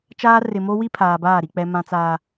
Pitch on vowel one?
high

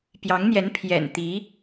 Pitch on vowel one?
rising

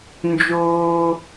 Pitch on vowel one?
high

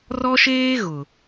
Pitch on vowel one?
high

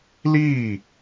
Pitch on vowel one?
falling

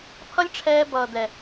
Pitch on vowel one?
high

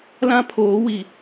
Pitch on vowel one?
high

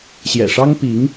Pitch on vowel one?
low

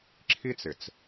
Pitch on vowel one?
high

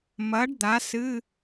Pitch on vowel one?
rising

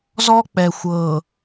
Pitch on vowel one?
high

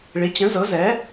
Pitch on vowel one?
rising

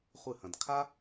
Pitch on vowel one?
falling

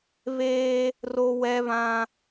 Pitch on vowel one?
high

